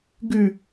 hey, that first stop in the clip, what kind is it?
plain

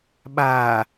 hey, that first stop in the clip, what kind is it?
implosive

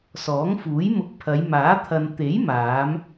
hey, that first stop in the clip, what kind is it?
plain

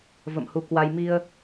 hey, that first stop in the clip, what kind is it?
plain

